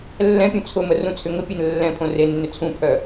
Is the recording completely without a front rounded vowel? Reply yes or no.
no